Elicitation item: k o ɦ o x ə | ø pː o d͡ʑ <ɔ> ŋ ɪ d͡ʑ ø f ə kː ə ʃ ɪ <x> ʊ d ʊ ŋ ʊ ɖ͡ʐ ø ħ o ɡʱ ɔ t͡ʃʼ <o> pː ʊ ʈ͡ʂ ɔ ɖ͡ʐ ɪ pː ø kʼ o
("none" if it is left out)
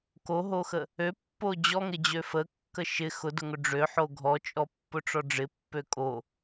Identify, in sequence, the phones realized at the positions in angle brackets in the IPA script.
ɔ, x, ɔ

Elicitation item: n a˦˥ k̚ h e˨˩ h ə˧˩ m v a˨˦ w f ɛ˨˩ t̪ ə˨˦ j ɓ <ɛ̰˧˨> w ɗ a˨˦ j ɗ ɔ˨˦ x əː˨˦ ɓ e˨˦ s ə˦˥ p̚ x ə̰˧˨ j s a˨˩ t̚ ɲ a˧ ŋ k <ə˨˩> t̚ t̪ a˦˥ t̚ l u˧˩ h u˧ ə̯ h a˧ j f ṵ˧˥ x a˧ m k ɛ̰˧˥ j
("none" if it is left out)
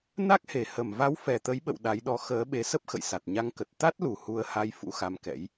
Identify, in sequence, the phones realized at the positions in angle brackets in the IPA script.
ə̰˧˨, ə˨˩

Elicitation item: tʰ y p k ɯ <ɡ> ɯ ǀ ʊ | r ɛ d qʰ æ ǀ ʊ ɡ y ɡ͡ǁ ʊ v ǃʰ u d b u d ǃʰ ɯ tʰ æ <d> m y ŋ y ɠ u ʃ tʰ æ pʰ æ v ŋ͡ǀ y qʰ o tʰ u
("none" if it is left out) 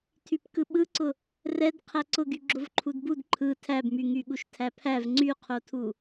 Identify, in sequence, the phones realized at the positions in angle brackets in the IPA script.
ɓ, b

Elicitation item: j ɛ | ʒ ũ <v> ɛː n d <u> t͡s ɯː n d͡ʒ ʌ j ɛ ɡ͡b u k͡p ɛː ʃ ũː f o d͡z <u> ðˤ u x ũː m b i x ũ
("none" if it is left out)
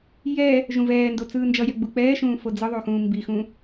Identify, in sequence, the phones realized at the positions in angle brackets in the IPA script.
v, o, ɯ

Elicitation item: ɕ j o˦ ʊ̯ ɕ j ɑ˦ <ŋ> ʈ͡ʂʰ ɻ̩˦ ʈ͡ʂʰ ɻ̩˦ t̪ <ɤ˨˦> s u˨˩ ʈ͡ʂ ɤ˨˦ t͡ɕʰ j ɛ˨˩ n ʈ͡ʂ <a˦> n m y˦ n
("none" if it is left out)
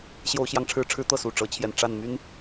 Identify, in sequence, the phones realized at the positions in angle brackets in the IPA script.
ŋ, ɤ˥˨, a˥˨

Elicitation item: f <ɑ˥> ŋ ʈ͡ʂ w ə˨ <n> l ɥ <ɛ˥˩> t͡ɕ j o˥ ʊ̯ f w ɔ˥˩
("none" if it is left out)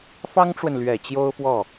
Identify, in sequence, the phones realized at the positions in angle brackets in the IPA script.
ɑ˥, n, ɛ˨˩

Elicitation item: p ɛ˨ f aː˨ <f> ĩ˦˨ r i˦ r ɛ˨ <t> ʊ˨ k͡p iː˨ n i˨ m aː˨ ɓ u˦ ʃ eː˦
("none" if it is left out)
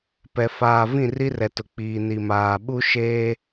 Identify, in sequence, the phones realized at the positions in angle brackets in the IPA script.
v, t

